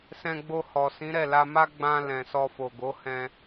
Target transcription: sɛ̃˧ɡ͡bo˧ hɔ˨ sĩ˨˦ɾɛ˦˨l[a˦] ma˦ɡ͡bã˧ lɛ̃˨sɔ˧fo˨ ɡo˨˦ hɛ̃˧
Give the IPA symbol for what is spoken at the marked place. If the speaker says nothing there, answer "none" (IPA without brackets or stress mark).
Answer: a˧